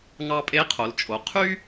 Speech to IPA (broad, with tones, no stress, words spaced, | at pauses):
ŋɑ˧pʼe˧˥qʰo˩˧lt͡ʃʼo˩˧ qʰy˥